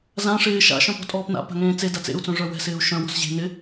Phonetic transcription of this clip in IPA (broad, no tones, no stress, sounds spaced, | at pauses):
z ã ʂ ɪː ʃ a̰ ʃ œ̃ p ɔ̤ tʼ ɔː p n a̰ p a̤ ŋ ẽː t͡s e d a t͡s ḛ u̯ t͡s œ̃ ʐ œ w ɛ̤ s ɪː u̯ ʃ œ̃ w ɔ̤ s ʑ e̤ n ɪ